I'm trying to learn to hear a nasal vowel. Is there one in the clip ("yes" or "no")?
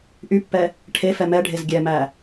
no